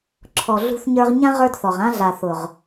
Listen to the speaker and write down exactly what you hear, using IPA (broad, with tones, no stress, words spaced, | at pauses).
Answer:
ǁʰɔ˨ɮṳ˧θɲə˞˧ʁɲã˦ ʁə˞˦dθɔ˨ʁ ã˦ɮa˨θʊ˨ʁ